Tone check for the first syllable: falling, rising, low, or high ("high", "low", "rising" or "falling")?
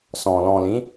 low